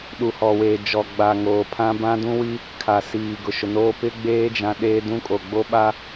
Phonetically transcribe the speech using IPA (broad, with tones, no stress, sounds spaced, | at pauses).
ɗ u˨ h ɔ˨ w eː˨ d͡ʒ ɔ˨ ɡ͡b a˨ ŋ oː˨ pʰ ã˦ b ã˦ d ũ˦ w i˦ | kʰ a˨ s iː˨ ɡ ʊ˨ ʃ ʊ˨ n oː˦ p ɪ˦ ɡ͡b eː˦ d͡ʒ ã˦ ɗ eː˦ d ũ˦ kʼ o˨ ɡ͡b o˦ ɓ a˦